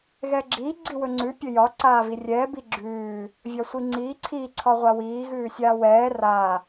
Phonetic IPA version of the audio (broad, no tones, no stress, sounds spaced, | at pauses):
ɣ ɛ ɡ͡ǁ iː ɡ͡ǀ i w ɵ ŋ͡ǀ ʉ pʲ ɵ j ɒ ǀ aː v i rʲ ɛː b i ɡ͡ǁ ʉː | vʲ ɒ sʷ i ŋ͡ǀ iː ǀʰ i ǀʰ ɒ ʁʷ a w iː ɣ ʉː sʲ aː w ɛː r a